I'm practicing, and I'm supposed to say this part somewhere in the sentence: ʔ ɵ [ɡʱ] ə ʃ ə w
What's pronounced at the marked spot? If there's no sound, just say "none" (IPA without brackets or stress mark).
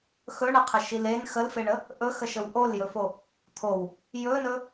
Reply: x